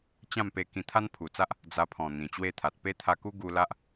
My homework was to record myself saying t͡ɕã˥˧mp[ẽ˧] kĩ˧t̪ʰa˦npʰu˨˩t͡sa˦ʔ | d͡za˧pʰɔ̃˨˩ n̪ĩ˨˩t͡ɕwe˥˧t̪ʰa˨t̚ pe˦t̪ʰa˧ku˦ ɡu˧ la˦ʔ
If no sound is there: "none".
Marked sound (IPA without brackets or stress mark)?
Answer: e˧